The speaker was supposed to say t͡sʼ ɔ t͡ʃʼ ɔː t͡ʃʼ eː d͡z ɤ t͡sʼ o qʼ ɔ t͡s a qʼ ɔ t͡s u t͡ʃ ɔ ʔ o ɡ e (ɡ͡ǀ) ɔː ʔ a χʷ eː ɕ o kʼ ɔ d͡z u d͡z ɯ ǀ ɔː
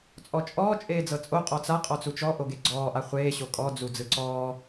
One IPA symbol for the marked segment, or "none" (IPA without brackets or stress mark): ɡ͡ǀ